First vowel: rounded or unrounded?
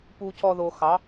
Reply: rounded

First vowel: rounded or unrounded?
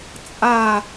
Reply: unrounded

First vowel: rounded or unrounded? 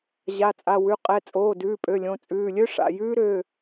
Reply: unrounded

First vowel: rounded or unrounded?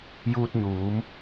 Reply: rounded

